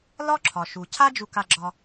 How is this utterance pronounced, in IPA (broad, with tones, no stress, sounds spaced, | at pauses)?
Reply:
l ɒ˥ ǁʰ ɒ˩ ʃ u˩ cʰ a˥ d͡ʒ u˧ k a˧ ɡ͡ǁ ɒ˧